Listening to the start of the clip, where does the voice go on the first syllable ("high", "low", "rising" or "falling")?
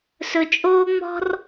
low